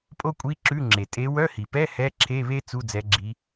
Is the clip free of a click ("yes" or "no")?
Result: no